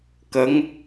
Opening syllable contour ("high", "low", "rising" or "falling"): rising